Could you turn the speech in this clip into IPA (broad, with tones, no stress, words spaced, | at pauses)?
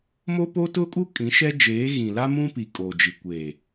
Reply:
mo˦po˦tʊ˦kʼu˦ kʼĩ˨˦ʃɛ˦ d͡ʒeː˨˦ɣĩ˨ la˦ mũ˦pi˨ kʼo˨d͡ʒi˨ kʷeː˨